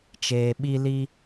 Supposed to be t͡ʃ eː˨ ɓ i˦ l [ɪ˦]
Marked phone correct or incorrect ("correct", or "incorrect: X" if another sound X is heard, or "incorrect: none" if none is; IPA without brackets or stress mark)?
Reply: incorrect: i˦